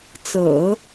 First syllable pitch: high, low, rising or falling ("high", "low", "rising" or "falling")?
low